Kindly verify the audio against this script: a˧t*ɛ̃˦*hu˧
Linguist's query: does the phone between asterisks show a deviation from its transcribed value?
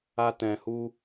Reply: yes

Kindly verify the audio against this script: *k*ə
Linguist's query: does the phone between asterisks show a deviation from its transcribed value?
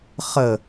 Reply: yes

